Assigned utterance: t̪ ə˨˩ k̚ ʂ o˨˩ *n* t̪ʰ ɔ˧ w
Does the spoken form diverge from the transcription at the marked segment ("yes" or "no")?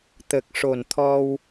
no